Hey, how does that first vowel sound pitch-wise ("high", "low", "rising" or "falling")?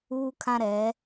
high